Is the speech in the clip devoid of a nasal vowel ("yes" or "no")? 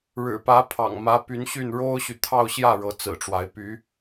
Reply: yes